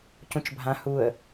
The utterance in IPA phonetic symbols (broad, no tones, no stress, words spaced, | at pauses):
cũt͡ʃbʱã huə̯